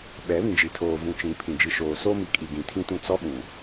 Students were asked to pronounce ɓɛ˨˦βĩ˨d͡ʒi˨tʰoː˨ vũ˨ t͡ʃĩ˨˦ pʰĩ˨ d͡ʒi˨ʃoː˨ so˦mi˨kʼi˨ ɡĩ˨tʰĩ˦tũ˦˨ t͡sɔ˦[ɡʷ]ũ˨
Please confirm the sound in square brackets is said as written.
no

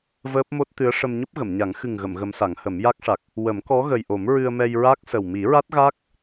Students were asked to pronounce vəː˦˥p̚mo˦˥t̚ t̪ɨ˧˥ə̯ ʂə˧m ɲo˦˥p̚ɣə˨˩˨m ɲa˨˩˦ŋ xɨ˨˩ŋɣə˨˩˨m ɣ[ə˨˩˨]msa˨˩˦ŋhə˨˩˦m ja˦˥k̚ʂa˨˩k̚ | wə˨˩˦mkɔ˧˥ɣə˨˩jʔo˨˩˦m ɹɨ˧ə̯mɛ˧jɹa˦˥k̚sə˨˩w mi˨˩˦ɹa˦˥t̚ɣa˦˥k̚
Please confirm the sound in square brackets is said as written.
no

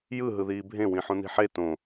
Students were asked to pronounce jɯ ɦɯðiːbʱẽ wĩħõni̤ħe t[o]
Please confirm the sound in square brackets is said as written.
no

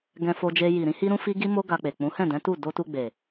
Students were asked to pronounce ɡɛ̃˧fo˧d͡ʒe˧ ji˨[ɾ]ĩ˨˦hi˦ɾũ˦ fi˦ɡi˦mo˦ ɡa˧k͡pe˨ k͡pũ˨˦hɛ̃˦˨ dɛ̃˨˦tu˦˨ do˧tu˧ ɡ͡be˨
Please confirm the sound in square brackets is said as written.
yes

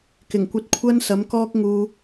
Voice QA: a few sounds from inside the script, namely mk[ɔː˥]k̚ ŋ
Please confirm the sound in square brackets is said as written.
yes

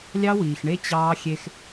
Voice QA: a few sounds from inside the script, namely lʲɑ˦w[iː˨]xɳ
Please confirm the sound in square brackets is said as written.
yes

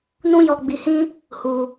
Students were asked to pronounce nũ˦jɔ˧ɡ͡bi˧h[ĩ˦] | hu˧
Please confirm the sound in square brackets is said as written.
yes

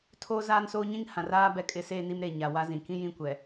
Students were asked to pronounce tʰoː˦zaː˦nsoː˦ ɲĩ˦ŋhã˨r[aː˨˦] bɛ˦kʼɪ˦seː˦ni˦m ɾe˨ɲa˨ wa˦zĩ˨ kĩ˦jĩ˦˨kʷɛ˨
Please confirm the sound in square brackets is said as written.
no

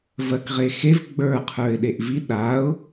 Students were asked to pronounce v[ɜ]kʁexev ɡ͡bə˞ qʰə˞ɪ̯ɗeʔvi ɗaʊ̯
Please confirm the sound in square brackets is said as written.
yes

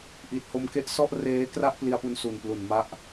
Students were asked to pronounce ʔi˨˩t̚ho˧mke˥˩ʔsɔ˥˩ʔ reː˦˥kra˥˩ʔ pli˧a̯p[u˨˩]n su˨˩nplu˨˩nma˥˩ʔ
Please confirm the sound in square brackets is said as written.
no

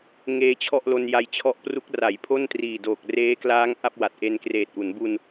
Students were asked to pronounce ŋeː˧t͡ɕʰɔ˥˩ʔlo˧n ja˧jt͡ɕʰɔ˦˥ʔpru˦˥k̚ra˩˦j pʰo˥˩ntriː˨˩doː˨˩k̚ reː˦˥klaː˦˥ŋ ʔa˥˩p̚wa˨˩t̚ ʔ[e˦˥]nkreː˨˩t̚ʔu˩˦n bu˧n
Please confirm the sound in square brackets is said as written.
no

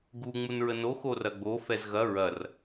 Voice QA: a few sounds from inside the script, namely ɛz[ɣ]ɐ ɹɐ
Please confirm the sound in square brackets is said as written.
yes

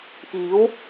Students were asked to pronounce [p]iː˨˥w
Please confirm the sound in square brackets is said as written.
yes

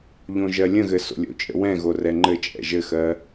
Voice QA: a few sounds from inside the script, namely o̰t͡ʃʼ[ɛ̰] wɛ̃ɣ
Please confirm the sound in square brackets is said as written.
no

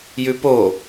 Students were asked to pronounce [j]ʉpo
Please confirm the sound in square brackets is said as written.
yes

